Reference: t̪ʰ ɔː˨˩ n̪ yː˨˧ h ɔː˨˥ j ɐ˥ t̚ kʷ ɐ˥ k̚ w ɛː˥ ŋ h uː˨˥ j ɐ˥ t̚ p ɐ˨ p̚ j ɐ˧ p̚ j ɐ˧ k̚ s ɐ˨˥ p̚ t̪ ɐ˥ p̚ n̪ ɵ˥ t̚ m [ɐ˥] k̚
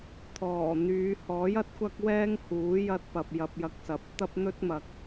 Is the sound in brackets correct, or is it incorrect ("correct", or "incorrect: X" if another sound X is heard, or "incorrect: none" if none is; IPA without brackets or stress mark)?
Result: incorrect: ɐ˨